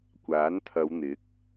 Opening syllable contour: rising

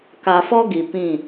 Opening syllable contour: low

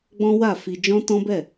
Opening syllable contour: high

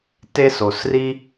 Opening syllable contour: high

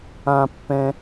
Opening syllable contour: high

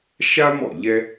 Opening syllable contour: high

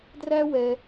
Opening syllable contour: high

